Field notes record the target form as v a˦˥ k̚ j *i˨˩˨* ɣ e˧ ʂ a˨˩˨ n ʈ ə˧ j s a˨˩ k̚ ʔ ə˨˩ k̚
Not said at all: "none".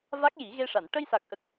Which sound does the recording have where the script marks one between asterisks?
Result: i˨˩˦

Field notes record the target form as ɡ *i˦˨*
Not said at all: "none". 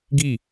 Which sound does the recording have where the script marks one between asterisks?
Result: i˦˨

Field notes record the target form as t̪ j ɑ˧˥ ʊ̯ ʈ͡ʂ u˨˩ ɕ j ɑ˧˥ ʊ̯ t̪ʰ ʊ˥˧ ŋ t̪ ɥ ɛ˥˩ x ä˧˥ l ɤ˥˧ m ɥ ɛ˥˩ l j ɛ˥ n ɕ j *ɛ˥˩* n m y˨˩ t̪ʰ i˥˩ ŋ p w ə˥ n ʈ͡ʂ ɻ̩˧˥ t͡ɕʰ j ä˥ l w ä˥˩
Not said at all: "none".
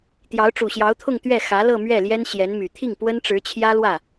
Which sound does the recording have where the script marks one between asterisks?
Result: ɛ˧˥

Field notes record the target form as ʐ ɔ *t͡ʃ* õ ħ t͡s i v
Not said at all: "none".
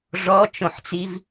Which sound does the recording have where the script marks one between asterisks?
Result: t͡ʃ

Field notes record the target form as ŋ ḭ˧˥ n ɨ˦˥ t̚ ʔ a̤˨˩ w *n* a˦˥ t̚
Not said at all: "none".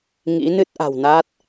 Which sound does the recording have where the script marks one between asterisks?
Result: n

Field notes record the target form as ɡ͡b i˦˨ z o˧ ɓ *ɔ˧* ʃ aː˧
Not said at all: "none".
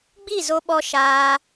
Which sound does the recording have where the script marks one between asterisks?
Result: ɔ˧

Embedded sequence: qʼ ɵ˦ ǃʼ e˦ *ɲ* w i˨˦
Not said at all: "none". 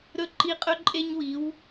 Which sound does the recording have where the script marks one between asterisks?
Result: ɲ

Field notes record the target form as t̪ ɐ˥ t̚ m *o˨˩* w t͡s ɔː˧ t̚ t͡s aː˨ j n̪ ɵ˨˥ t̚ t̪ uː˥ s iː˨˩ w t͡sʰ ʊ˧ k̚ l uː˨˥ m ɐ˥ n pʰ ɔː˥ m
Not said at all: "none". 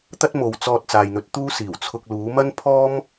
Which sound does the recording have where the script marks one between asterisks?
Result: o˨˧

